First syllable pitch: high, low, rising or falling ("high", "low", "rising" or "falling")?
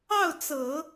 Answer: falling